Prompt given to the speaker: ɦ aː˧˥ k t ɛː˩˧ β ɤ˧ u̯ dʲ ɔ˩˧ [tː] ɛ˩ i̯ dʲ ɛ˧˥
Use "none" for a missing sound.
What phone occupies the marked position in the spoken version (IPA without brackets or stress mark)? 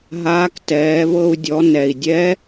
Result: n